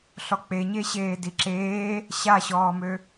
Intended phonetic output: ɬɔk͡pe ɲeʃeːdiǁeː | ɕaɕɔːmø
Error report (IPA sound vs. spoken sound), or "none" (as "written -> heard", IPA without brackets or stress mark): ʃ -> ɕ